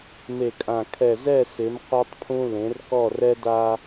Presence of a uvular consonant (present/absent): present